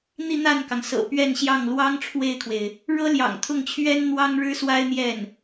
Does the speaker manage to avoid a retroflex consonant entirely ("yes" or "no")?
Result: no